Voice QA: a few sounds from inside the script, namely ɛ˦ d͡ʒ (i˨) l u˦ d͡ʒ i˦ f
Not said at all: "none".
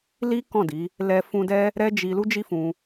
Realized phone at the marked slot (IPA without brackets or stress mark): i˧